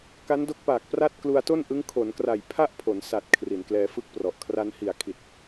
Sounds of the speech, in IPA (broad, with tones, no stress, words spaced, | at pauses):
ka˦˥ndo˦˥k̚paː˨˩k̚pra˥˩t̚ klu˧a̯to˥˩n ʔɯ˦˥ŋ kʰo˩˦nkra˨˩j pʰa˥˩ʔpʰo˩˦n sa˨˩t̚ kʰri˩˦nklɛː˧fɯ˥˩k̚prɔ˨˩ʔ kʰra˧nhi˨˩a̯kʰi˨˩t̚